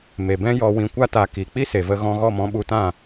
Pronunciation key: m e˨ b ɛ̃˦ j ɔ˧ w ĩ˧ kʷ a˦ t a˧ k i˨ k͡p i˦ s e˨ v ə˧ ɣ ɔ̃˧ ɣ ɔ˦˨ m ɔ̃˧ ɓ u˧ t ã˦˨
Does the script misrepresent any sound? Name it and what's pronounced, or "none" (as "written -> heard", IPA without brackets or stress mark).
none